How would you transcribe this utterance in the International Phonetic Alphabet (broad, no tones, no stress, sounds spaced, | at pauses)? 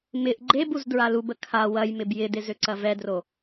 m ɪ ʔ ɡ͡ǃ e b u z d ɹ a l u b ə kʰ a w ɐ j m ɪ b j ɪ d ɪ z ø ǀ ɐ v ɛ d r o